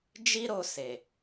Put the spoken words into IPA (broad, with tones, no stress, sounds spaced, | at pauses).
d͡ʒ i˦ ɾ o˧ s e˨